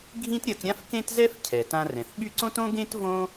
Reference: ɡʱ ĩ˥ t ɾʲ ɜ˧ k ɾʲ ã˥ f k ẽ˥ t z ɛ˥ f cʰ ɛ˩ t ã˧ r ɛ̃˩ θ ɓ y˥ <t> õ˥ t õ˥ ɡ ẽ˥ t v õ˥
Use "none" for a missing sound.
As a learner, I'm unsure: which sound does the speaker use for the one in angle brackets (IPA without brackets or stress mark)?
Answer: ǀ